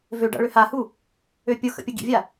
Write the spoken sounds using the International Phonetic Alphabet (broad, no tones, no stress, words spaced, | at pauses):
vø ɖa̰ɭøhahu | øpʲʊxə̰ pʲəɡḭvʲa